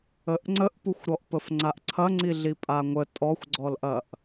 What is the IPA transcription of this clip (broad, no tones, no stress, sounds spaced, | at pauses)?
ə ʔ ŋ͡ǀ ə ʔ p u xʷ ɾ ɔ ʔ p ə f ŋ͡ǀ a ʔ ǀʰ ɐ ŋ͡ǀ i ɮ i pʼ a ŋʷ ə tʼ ɔ xʷ ɡ͡ǀ ɔ l ʔ ɐ ʔ